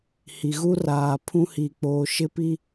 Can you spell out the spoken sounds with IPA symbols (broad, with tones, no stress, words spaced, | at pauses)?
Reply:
hi˨ɣu˦raː˨ pʰũ˦hi˨k͡poː˨ ʃɪ˦pi˦